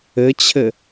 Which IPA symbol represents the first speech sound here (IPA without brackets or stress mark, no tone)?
ɘ